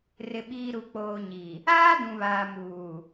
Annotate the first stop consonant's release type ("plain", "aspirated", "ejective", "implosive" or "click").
implosive